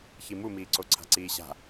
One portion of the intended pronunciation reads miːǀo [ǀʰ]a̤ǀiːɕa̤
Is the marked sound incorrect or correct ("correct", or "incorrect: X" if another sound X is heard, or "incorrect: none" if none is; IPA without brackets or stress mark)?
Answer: correct